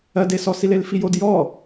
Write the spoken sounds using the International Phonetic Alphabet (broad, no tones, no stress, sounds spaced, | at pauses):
ɜ d e s ɔ s i l e l f i j o d j ɔ